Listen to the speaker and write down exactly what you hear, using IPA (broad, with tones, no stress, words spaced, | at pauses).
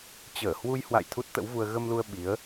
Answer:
t͡ɕəː˧˩hwu˧jhwa̰˧˨j t̪ʰu˦˥t̚t̪ə̰˧˥wvu˧ə̯ ɣə˧mlu˧ə̯ ɓi˨˦ə̯